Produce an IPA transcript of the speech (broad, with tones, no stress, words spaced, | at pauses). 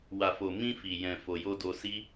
wa˨fo˨ mĩ˧fi˨jɛ̃˨ fo˨jo˧do˧si˦